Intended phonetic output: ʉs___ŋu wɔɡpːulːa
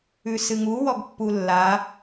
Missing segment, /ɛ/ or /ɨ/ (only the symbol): ɨ